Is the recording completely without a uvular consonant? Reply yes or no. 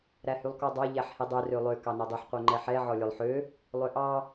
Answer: no